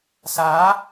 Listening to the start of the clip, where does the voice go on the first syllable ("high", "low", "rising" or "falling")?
rising